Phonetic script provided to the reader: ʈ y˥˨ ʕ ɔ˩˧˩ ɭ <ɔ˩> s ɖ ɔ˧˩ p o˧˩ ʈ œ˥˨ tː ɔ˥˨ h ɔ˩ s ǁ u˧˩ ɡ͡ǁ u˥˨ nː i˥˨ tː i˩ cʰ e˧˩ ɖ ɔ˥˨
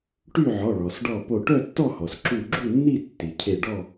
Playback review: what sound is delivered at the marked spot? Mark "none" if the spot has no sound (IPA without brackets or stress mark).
ɔ˩